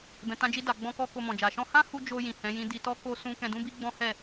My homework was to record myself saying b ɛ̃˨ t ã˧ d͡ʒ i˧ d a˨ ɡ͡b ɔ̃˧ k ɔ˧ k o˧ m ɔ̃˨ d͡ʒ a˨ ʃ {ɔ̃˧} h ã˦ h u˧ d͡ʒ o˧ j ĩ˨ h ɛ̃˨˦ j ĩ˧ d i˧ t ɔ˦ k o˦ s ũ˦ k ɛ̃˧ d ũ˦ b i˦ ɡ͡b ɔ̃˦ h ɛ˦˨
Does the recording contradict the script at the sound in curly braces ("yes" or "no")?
no